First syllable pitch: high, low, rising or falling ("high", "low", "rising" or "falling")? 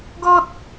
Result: high